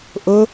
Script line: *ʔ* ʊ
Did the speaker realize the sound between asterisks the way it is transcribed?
yes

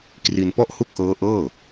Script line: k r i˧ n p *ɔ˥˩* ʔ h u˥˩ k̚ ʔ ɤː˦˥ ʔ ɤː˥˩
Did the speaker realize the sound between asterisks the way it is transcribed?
yes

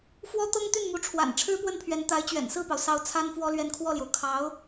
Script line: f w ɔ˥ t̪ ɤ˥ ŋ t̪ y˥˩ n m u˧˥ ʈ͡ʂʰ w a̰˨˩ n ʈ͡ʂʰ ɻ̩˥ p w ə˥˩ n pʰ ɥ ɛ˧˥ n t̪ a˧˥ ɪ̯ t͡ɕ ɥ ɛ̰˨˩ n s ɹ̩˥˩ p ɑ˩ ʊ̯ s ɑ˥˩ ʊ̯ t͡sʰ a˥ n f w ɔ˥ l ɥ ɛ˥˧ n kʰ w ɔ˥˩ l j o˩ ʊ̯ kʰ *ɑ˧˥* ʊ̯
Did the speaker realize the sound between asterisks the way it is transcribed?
yes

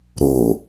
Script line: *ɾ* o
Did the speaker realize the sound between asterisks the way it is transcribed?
yes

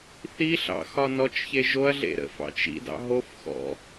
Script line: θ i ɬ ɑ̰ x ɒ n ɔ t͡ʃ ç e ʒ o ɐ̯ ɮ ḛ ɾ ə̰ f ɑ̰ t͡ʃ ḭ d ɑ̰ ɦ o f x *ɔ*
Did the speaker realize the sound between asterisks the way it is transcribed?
no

